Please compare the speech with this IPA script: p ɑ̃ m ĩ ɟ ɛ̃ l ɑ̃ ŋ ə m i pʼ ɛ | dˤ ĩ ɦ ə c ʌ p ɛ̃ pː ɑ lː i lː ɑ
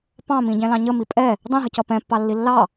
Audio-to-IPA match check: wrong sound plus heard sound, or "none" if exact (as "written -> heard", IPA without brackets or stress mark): ŋ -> ɲ